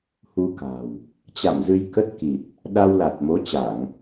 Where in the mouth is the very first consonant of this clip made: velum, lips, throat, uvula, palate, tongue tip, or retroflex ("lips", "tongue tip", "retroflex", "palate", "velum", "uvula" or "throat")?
throat